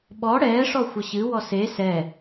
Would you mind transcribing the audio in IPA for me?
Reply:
ɓ ɔ ɽ ɛː ʂ ɔ xʷ ʌ ɕ ɨ w ɔ s e s ɛ

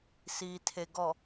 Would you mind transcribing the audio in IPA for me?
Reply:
s iː˨ tʰ e˨ ɡ ɔ˨

